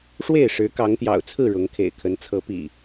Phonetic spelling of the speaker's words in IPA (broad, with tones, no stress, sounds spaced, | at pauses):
ʂ w e˥˨ ɪ̯ ʂ ɻ̩˨˦ k ɑ˨˦ ŋ t̪ j ɑ̰˨˩ ʊ̯ t͡sʰ ɹ̩˥˨ ɻ ʊ˨˦ ŋ kʰ ḛ˨˩ ɪ̯ kʰ ə˨˦ n t͡sʰ ɤ˨˦ p ḭ˨˩